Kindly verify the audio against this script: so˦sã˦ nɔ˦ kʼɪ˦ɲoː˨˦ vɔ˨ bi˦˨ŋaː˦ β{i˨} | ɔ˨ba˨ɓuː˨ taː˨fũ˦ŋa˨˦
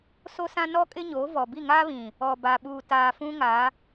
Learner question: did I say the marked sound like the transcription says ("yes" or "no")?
no